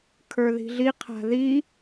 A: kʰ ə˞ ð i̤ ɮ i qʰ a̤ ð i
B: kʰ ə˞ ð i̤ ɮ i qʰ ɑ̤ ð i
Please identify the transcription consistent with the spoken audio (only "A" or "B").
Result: A